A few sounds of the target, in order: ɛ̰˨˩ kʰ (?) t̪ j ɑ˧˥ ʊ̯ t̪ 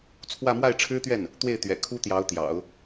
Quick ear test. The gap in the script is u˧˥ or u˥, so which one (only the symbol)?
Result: u˥